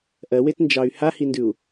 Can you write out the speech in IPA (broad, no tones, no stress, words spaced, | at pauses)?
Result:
ʔɜwetnd͡ʒɑy̯ hahindʉu̯